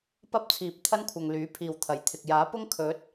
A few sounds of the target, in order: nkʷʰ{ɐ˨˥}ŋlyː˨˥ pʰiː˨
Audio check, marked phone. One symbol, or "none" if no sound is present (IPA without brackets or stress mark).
ɐ˨